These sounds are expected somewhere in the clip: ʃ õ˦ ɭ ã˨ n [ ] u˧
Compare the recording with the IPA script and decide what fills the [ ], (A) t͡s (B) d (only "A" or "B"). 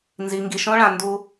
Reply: B